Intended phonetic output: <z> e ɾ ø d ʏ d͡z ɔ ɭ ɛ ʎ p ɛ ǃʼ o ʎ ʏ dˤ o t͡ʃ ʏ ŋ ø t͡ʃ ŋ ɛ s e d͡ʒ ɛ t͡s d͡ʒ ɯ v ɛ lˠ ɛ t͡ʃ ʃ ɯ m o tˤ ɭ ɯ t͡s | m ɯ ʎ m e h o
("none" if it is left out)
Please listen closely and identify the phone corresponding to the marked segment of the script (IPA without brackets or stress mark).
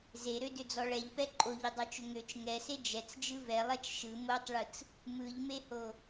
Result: z